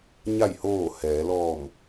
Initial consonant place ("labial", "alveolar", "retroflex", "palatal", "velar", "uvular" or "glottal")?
palatal